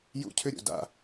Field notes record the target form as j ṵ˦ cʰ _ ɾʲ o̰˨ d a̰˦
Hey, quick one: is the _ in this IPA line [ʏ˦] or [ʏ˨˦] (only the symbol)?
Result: ʏ˦